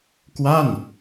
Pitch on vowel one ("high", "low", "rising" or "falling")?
falling